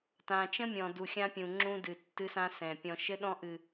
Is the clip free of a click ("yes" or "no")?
no